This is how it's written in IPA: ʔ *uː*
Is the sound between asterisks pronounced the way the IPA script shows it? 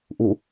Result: no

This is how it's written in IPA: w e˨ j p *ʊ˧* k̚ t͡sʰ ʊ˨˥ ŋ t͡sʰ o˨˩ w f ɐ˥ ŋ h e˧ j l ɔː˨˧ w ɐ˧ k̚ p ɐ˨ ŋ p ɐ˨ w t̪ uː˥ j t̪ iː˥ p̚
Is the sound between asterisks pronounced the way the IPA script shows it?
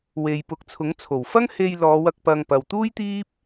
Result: no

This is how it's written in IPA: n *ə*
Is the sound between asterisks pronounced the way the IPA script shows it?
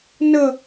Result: yes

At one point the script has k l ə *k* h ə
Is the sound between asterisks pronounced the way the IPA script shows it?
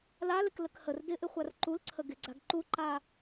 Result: yes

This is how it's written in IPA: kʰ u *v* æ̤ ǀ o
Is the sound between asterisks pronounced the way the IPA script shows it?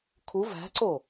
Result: yes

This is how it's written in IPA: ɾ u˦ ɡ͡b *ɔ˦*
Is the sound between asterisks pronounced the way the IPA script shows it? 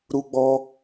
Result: yes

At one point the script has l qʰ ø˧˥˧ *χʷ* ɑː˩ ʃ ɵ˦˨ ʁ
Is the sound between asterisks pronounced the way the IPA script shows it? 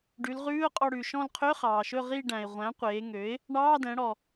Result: no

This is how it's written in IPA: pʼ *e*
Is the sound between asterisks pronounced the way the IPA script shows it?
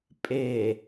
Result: yes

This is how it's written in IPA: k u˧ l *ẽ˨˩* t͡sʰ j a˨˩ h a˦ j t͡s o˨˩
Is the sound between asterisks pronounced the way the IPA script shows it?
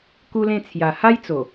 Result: no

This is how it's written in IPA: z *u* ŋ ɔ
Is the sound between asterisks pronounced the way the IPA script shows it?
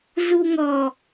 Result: yes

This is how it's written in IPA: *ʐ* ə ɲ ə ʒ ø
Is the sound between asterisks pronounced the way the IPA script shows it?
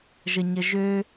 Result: no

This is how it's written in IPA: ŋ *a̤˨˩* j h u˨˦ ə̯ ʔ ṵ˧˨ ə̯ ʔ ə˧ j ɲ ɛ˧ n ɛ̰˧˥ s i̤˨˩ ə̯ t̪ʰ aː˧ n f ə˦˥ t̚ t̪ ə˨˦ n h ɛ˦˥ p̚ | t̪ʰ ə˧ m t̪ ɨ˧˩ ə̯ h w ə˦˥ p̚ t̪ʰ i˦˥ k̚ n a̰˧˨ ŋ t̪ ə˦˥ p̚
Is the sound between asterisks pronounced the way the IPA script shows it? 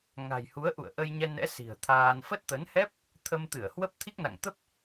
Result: yes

